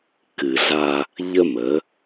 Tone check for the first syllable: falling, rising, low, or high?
low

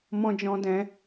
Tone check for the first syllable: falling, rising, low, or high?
high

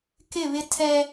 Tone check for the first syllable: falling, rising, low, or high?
falling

